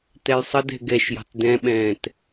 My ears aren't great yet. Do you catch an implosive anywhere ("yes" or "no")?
yes